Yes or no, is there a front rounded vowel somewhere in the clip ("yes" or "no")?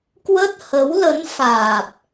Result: no